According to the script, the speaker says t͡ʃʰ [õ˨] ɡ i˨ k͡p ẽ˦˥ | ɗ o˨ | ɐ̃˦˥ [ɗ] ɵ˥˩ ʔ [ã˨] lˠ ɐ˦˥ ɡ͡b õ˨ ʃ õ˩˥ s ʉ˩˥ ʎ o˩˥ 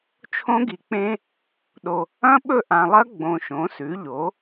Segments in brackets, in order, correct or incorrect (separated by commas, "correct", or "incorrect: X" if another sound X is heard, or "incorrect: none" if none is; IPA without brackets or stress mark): incorrect: õ˦˥, incorrect: ɓ, correct